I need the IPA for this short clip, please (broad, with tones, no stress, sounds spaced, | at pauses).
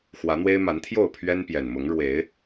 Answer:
x w ä˨˦ n̪ w e˦ ɪ̯ m a˨˦ n t̪ʰ j o˥˨ ʊ̯ pʰ ɥ ɛ˦ n p j ɛ˨˩ n m ʊ˨˦ ŋ ɻ w e˨˦ ɪ̯